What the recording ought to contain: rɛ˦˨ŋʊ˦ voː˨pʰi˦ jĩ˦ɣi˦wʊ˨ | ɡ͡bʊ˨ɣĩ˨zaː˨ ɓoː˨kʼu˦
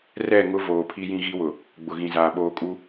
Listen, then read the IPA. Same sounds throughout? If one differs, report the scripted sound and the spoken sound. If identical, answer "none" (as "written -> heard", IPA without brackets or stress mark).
none